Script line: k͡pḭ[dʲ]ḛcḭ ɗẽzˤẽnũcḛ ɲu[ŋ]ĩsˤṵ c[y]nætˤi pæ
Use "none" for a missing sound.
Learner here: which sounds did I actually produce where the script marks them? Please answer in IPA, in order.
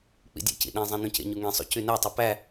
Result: dʲ, ŋ, y

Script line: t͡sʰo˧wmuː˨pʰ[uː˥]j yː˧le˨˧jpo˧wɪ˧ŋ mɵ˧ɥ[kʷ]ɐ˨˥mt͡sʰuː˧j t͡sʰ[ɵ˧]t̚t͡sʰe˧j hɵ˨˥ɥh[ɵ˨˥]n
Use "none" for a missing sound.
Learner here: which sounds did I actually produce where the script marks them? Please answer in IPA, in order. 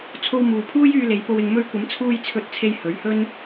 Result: uː˥, kʷ, ɵ˧, ɵ˥

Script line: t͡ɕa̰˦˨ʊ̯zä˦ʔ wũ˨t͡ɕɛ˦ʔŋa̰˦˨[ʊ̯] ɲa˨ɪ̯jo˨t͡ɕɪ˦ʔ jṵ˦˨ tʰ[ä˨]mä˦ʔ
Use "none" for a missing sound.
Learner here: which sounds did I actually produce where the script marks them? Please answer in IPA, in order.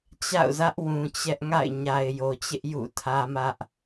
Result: ɪ̯, ä˦

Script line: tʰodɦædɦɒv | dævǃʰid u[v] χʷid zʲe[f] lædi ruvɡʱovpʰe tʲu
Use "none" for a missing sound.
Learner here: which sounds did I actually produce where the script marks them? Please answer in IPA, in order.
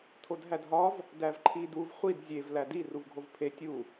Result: v, v

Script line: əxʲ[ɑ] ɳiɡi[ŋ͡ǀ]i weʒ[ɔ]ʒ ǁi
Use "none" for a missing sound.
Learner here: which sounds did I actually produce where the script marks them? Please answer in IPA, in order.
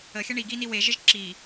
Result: ə, n, ə

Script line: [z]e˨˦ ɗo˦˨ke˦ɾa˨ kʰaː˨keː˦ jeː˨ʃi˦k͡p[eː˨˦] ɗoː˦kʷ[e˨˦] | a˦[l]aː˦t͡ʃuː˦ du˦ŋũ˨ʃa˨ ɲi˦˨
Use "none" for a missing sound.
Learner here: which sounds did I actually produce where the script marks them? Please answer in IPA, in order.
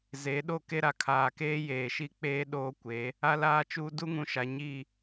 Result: z, eː˦, e˨˦, l

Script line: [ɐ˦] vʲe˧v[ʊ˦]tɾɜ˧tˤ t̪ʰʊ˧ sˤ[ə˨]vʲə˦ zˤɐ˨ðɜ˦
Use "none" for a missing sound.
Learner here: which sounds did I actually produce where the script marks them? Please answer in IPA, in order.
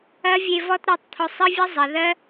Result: ɐ˦, ɔ˦, ə˦

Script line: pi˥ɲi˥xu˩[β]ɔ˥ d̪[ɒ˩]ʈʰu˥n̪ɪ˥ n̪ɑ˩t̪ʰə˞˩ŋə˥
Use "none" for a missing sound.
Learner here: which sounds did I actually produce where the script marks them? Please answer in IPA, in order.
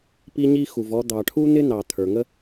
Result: v, ɑ˩

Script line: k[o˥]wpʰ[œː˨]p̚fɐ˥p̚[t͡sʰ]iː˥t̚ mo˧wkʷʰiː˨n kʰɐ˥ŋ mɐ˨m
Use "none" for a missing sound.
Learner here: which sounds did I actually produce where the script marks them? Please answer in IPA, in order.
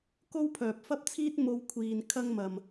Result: o˥, œː˨, t͡sʰ

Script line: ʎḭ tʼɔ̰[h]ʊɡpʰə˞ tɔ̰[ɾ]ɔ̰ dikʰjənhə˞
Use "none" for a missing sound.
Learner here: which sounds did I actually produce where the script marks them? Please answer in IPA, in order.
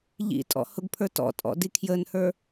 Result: h, tʼ

